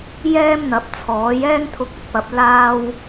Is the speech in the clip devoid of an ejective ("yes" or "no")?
yes